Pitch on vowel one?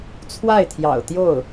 falling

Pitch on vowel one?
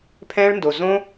high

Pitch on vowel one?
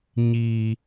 high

